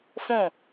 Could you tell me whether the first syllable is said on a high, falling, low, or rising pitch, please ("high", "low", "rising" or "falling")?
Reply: falling